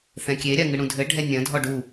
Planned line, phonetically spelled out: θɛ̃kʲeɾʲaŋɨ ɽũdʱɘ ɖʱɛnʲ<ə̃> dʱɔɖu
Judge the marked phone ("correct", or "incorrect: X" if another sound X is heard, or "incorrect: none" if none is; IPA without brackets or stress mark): incorrect: ɐ̃